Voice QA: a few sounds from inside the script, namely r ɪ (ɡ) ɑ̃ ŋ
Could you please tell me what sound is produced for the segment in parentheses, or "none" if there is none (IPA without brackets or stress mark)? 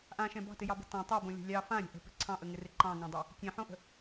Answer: ǃ